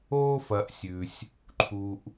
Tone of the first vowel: high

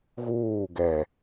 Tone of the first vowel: falling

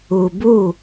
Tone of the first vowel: low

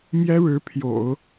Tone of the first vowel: high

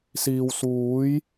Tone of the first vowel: low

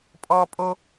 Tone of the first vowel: high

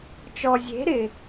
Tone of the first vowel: low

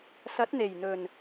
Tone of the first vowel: rising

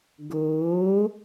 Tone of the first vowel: rising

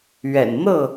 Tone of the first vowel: low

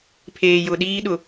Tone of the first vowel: low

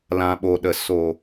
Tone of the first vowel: low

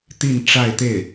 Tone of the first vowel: falling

